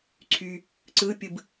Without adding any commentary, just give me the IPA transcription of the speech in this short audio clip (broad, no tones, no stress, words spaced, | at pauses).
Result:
ǀʰy | ǀɯpʲɯb